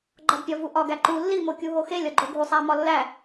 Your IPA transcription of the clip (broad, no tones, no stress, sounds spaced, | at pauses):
ɡ͡ǃ ɒ d pʲ ɒ v u ʔ ɒ ɡ æ ǃ u lː i m o kʲ u ɦ o x e lʲ ɒ ɡ͡ǃ o ɡʱ u sˤ æ m ɒ lː æ